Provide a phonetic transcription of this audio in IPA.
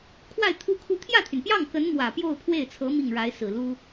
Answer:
kʰ w a˥˩ ɪ̯ t̪ʰ u˥ kʰ u˥ t̪ʰ j ä˥˩ t̪ʰ y˩ n p j ɑ˥˩ ŋ k ə˧˥ n m w ä˨˩ p j o˥˧ ʊ̯ pʰ w e˥˩ ɪ̯ t͡sʰ ɤ˧˥ m i˥˩ ŋ ɻ a˧˥ ɪ̯ s ɹ̩˨˩ l u˥

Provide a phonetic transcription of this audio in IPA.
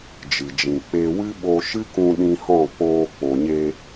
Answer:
d͡ʒ ɨ˨ d͡ʒ ĩ˨ k͡p e˧ w ɨ˦ ɓ o˧ ʃ ɨ˦ k ũ˧ ɗ ĩ˧ h ɔ̃˦˨ k͡p oː˧ k͡p o˨ ɲ e˧

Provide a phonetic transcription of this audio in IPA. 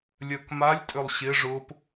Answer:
lʲ œ k m a lʲ tʼ ʏ lˠ ɕ ɪ ʐ ʊ p

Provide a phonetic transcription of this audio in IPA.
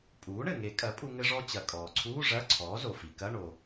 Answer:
pʼ uː˩˥ ɳ ɘ˩ ŋ e˨˩˦ kʼ ɐ˩˥ pʼ u˧ ŋ ɘ˧ ʐ ɔ˧ t͡ɕ ɐ˩ kʼ ɔː˩ ǀʰ uː˧˥˧ ʐ ɐ˧˥˧ ǀʰ ɔː˩˥ z o˩ f i˩ k ɐ˧˥˧ ɳ o˩

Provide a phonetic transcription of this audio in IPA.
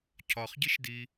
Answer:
cʰ ɒ χ ɟ i ʃ d i

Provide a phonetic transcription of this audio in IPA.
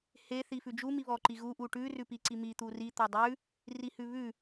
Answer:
h e θ i f ʉ d͡ʒ u m i β ɔ ǃ i ɣ u ʔ u ʈ ʉ r ʉ p i ǀ i m i t̪ u r i t̪ ɔ dˤ ʉ | r i h ʉ β ʉ

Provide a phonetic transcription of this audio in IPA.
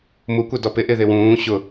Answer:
m u kʷ ɛ d ɔ p ɪ ʔ ɪ ð ɪ w ũː ɕ ʊ

